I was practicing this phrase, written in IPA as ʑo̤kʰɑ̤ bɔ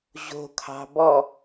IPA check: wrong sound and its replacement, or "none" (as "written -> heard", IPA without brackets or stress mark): none